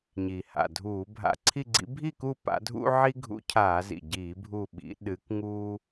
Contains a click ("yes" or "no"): yes